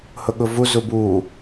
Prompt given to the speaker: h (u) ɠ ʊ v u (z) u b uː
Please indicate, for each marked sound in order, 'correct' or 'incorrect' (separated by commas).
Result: incorrect, correct